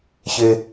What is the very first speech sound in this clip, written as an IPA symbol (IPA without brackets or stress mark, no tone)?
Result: ç